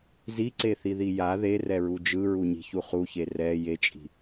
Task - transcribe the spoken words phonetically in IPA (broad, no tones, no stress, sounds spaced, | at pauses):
z i ǀ e θ i ð i j a ð e r ɛ ɹ u d͡ʒ ɯ ɹ u ɲ i̤ ç u χ u ç e r ɛ j e t͡ʃʼ i̤